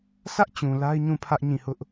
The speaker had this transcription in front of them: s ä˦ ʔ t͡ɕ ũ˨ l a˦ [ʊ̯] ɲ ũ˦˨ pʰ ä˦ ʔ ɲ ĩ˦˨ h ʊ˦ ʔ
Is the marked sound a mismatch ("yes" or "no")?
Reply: yes